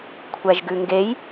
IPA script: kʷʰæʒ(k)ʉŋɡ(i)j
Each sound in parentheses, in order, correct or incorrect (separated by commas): incorrect, incorrect